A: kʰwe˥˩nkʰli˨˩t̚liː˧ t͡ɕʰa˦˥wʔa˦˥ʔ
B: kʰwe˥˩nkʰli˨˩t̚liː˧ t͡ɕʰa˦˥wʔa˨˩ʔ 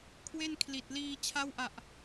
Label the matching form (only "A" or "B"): B